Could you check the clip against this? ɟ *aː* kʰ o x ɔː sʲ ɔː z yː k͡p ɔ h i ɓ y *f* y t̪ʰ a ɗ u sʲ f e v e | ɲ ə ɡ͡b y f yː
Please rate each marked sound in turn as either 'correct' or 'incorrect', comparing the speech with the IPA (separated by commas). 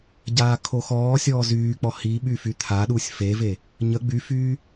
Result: correct, correct